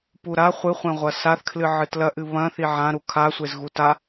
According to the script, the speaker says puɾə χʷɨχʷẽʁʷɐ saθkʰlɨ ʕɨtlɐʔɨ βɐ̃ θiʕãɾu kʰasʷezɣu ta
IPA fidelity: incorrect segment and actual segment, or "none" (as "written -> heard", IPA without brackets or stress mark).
ə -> a